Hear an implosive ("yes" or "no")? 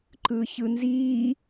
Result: no